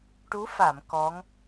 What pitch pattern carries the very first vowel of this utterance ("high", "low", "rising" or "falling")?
rising